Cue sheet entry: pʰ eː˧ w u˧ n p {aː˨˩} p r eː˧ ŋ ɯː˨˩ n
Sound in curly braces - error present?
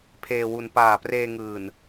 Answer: no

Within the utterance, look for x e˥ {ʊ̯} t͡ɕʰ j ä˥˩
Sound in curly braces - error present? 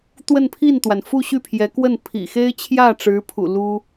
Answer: yes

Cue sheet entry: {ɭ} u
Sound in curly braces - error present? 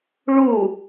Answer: no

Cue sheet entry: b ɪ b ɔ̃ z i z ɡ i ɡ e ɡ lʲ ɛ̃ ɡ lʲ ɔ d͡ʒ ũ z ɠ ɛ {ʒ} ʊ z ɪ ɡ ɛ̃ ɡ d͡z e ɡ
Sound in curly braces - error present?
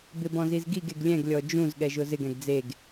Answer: no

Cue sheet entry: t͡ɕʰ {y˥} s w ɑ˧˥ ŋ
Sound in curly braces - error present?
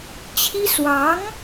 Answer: yes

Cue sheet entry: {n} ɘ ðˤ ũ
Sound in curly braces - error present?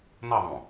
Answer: no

